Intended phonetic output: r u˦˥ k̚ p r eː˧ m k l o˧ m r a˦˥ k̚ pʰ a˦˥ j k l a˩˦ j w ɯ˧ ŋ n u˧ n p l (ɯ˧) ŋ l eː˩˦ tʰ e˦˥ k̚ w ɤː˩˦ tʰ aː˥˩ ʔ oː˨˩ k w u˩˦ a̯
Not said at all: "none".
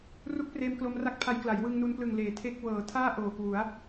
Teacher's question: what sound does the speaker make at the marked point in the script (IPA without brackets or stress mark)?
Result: ɯ˨˩